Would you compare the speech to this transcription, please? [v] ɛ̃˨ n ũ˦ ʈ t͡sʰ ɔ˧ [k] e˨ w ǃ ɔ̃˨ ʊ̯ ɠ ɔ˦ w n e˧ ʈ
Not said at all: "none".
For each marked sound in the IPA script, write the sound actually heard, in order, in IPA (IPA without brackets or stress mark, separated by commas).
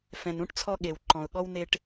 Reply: f, ɠ